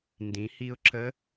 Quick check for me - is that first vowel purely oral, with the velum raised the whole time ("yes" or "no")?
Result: no